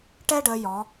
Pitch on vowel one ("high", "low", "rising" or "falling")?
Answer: high